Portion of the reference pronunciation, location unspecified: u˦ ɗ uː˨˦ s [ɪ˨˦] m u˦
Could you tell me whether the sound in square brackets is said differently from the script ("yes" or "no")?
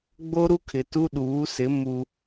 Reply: no